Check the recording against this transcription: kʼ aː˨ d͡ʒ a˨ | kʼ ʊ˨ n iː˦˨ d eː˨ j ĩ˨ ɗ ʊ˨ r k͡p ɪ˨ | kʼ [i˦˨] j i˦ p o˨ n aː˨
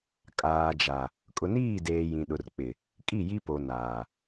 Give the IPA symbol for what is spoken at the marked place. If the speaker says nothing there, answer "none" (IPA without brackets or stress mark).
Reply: i˦˨